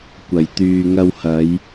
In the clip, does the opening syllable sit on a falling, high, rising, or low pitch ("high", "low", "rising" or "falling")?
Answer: low